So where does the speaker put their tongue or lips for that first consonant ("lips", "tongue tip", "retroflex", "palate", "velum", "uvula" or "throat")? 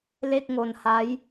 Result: tongue tip